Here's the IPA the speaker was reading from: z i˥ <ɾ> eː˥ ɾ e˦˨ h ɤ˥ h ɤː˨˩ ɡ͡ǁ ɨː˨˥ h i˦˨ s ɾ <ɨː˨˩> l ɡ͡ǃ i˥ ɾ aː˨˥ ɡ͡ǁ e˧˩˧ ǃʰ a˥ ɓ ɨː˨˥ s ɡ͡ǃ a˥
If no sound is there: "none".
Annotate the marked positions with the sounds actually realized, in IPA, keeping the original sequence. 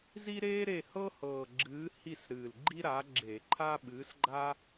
ɾ, ɨː˨˩

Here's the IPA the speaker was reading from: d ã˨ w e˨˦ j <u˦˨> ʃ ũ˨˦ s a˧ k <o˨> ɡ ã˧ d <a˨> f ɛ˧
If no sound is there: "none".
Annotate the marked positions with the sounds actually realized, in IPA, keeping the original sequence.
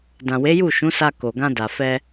u˦˨, o˨, a˨

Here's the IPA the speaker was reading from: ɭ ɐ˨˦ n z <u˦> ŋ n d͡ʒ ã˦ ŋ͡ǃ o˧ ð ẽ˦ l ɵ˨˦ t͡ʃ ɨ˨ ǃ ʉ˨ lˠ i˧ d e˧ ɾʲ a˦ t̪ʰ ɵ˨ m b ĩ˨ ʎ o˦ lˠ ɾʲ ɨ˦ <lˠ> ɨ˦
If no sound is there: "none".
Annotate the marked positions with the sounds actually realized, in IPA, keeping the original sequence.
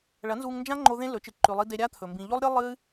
u˧, lˠ

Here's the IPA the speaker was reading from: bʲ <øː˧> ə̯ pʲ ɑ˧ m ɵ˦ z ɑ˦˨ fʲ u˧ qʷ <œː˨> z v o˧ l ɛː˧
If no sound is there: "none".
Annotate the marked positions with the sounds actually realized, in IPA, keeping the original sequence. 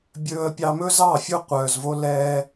ɵː˧, œː˨

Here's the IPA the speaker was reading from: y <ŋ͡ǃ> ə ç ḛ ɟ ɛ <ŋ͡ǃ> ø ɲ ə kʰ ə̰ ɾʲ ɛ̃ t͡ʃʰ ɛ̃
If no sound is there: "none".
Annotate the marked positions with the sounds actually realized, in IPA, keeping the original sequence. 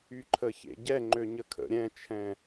ǃʰ, ŋ͡ǃ

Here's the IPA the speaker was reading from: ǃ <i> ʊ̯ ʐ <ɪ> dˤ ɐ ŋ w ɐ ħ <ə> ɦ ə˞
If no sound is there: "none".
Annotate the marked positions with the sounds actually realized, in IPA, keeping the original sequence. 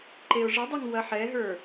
e, ə, ɛ

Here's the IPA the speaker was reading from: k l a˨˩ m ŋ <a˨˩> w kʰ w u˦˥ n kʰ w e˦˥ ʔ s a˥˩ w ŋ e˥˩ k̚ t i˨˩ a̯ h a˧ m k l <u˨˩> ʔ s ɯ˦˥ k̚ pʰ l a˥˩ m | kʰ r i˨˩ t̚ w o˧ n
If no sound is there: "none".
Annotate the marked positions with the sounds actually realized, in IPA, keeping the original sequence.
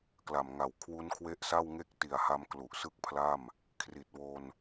a˨˩, u˨˩

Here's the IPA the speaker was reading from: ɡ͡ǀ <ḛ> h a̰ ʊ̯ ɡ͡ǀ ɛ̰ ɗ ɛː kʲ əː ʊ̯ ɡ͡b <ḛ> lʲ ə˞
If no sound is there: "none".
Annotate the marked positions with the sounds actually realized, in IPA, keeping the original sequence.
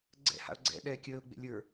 ɛ̰, ḛ

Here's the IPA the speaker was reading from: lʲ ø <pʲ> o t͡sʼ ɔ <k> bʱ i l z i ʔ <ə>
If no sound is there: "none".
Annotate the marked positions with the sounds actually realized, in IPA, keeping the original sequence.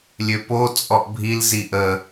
p, ʔ, ə

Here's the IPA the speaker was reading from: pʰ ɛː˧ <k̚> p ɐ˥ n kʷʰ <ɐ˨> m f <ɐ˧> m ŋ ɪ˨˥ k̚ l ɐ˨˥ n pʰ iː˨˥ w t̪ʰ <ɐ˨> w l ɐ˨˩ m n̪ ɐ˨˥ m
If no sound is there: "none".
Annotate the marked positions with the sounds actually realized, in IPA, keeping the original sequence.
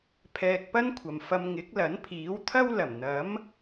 k̚, ɐ˨, ɐ˧, ɐ˥

